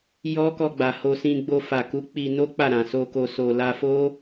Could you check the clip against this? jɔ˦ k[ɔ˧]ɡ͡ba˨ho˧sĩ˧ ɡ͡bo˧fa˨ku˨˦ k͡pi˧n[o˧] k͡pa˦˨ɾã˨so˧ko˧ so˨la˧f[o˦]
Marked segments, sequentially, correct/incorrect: correct, incorrect: o˦, correct

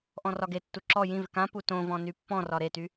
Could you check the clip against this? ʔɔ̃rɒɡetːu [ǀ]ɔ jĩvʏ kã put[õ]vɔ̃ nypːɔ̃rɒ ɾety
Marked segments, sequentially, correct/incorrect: incorrect: ǁ, correct

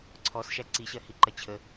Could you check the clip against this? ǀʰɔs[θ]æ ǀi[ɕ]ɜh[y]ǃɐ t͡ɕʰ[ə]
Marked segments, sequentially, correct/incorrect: incorrect: ʃ, correct, incorrect: i, correct

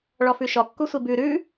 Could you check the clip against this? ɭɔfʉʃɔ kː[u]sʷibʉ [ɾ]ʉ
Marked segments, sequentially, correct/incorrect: correct, correct

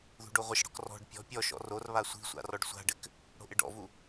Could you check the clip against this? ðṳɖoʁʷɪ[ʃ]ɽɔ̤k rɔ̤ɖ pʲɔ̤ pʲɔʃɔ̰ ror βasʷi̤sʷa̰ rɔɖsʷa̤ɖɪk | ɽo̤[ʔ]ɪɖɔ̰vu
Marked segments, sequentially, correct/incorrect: correct, correct

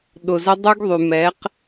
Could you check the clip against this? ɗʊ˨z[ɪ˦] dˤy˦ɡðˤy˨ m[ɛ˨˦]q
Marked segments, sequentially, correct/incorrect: incorrect: ə˦, correct

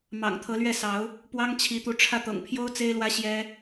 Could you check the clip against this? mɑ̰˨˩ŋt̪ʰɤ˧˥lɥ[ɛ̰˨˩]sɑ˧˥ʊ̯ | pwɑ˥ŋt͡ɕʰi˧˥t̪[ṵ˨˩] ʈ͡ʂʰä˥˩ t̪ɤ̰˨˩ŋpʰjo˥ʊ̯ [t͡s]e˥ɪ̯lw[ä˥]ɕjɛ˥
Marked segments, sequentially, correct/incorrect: incorrect: ɛ˥˩, incorrect: u˧˥, correct, correct

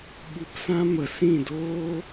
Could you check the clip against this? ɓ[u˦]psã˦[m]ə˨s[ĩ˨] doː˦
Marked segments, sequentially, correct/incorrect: incorrect: u˧, correct, incorrect: ĩ˦˨

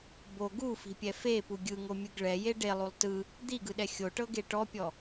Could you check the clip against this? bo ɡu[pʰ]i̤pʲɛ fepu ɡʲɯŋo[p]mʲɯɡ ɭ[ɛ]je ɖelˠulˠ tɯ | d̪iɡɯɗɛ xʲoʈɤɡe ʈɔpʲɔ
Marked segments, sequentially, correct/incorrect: incorrect: f, incorrect: none, correct

